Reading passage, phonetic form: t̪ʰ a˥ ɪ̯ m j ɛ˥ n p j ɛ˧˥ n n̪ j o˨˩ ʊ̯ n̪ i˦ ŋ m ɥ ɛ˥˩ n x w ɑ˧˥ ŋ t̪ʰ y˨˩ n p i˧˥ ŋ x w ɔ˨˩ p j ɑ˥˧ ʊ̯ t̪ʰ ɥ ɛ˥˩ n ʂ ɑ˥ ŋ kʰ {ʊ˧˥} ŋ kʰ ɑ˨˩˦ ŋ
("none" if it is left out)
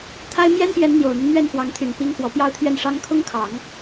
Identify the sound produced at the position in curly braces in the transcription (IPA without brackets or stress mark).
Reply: ʊ˥